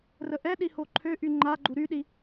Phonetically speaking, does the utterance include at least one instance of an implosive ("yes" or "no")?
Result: yes